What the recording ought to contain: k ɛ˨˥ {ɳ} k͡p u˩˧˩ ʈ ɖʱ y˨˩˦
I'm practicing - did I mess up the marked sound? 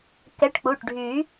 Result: yes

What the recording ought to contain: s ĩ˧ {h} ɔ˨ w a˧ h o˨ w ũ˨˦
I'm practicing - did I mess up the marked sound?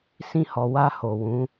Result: no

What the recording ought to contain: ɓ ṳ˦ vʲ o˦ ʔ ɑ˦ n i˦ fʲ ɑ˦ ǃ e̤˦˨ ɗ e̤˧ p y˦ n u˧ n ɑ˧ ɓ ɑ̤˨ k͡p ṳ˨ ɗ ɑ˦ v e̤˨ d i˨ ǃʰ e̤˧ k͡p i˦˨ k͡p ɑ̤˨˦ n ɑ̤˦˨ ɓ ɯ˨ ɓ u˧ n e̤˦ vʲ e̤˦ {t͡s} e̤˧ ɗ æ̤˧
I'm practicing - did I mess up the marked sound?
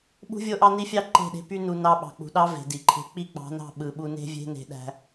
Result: yes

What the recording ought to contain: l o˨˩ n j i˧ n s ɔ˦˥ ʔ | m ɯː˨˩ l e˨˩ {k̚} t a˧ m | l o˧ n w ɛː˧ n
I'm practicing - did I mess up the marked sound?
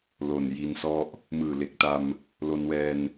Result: no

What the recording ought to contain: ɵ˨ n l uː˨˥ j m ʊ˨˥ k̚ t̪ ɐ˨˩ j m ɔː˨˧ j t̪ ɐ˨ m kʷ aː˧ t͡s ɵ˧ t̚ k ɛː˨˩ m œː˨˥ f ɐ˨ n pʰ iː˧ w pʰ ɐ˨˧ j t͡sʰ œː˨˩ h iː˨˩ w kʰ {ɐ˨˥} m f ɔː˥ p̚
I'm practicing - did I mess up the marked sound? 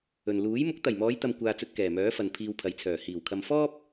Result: yes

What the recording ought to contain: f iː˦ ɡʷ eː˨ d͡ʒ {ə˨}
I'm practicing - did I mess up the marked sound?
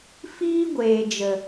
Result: no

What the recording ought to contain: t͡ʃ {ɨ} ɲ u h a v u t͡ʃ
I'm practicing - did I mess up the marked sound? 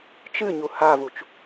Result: no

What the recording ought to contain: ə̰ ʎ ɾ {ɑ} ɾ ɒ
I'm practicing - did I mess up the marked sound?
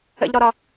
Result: yes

